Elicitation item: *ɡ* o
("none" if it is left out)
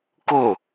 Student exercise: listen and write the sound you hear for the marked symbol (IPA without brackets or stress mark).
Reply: k